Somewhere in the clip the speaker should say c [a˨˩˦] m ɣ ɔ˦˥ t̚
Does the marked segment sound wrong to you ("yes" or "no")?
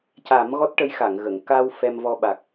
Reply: no